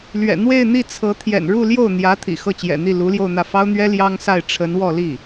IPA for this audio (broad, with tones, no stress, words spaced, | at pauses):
lɥɛ̰˨˩n̪we˥˧ɪ̯ n̪i˥˩ t͡sʰɤ˧˥t̪ʰjɛ̰˨˩n ɻu˥˧ljo˥˩ʊ̯n̪jä˧˥ t̪ʰḭ˨˩xɤ˥˩t͡ɕjɛ̰˨˩n̪i˥˩ lu˧˥ljo˥˧ʊ̯n̪ä˥˩ fɑ˥ʊ̯n̪ɥɛ˥ ljɑ˥ŋsa˥˩ɪ̯ ʈ͡ʂʰə˧˥nwɔ˥˧ li˥˩